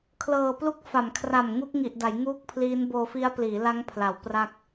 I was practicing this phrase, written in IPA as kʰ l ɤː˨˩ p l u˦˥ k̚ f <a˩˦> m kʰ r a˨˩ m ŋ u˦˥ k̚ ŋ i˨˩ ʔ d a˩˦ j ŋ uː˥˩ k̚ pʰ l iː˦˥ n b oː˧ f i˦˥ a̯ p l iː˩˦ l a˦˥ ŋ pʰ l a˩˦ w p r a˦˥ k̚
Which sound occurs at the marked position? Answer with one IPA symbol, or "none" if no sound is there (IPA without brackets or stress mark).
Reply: a˩˦